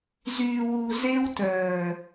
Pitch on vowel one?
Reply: low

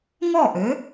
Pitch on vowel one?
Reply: falling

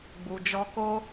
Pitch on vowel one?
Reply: low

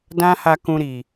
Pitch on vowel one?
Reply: high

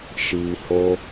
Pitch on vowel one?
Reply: low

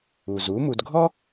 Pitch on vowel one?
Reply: low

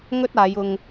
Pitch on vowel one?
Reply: high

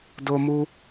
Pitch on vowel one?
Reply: high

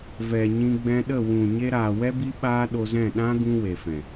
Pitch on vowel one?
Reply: low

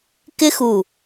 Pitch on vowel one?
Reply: high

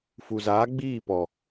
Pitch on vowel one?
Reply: low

